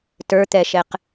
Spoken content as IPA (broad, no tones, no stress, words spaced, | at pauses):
tə˞t̪ɛʃɛq